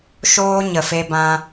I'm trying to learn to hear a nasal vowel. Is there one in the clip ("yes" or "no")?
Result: yes